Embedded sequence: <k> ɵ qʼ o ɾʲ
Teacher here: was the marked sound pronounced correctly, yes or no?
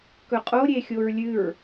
yes